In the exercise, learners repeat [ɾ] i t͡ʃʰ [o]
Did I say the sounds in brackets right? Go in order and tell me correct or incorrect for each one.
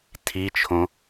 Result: incorrect: tʰ, incorrect: õ

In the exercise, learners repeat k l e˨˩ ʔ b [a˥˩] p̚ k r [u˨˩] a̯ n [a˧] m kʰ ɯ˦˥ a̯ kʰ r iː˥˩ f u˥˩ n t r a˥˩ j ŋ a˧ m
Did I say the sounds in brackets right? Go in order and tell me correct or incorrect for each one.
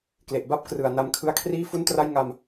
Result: correct, incorrect: ɯ˨˩, correct

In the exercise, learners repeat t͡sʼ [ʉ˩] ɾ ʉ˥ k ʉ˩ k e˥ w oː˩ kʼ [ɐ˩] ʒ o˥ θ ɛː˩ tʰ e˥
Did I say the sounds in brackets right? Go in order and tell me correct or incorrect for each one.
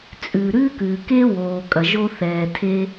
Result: correct, correct

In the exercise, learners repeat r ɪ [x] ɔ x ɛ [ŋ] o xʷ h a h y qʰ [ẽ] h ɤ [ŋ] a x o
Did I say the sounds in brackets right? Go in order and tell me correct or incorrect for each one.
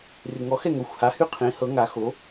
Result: incorrect: ŋ, correct, correct, correct

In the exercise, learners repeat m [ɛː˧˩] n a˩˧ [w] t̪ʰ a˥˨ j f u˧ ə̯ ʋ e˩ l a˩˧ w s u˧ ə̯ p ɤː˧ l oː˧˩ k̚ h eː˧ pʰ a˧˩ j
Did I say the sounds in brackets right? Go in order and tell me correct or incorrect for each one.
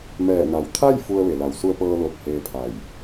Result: correct, correct

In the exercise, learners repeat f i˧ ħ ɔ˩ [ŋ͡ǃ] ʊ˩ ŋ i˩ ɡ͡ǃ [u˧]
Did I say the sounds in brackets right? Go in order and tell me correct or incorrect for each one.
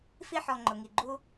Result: correct, correct

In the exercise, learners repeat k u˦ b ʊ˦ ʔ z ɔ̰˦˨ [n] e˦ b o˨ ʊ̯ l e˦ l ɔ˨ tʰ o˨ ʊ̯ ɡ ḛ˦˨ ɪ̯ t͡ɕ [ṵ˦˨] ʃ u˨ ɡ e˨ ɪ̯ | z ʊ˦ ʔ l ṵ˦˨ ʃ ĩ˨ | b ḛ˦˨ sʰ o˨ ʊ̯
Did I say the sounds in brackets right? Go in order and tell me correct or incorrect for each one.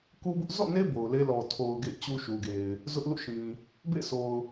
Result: correct, incorrect: u˦

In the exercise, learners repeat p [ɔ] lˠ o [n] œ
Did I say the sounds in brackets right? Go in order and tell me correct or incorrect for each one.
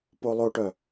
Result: incorrect: o, incorrect: ʈ

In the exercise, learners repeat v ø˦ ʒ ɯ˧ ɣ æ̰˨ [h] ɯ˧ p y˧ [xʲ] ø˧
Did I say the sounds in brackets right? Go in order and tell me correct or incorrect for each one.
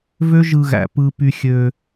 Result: incorrect: p, correct

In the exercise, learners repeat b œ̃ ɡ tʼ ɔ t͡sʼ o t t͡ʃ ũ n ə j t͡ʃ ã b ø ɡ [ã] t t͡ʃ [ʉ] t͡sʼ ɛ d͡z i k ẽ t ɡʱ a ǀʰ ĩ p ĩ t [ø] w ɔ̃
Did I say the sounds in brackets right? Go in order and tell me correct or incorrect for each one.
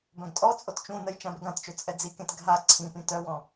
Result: correct, incorrect: ø, incorrect: œ

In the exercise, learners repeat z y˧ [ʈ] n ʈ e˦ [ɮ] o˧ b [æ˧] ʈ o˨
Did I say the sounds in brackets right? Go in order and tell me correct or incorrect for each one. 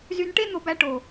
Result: incorrect: none, incorrect: n̪, correct

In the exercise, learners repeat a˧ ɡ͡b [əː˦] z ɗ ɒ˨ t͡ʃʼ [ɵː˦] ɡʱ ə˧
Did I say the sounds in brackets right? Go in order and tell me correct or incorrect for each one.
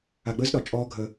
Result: correct, incorrect: ɔː˦

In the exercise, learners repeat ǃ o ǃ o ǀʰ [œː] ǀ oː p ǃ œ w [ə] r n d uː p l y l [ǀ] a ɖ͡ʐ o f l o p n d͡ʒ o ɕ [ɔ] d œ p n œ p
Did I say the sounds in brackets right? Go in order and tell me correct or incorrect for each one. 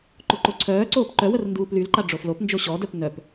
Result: correct, correct, incorrect: ǃ, correct

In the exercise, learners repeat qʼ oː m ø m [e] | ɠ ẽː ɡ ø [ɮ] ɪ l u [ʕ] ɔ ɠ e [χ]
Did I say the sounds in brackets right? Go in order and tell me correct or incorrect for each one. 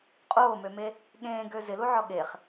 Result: correct, incorrect: z, correct, correct

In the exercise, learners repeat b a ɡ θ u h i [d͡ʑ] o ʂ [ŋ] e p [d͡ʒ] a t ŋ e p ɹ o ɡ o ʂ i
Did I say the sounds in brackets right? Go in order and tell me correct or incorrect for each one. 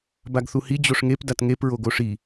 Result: correct, correct, incorrect: d

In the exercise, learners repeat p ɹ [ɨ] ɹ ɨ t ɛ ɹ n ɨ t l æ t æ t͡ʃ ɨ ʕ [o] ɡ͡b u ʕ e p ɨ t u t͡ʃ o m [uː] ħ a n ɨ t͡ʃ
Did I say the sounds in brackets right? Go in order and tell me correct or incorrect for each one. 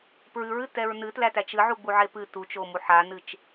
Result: correct, incorrect: u, incorrect: u

